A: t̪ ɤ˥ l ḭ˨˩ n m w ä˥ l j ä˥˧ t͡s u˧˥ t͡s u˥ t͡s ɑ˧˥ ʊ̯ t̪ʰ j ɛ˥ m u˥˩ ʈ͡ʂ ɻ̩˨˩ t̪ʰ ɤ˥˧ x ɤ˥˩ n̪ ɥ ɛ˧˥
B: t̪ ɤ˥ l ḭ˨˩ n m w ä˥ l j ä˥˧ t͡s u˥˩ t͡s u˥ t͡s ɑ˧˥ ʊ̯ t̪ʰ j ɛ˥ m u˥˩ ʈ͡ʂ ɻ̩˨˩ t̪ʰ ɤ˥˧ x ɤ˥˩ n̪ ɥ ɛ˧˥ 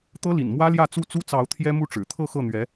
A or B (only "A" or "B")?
B